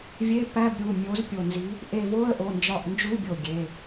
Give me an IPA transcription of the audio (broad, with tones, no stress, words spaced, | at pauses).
vʲe˧˥˧ pæ˧˥˧bɾʲu˩˧˩ mʲo˨˥zpʲo˧˩nzi˨˥ | ʔe˧˩vo˧˥˧ə̯ʔo˩˧˩ nd͡ʒɒ˧˩ʔnd͡ʒu˧˥˧bʲo˧˩ ɡʲe˩˧˩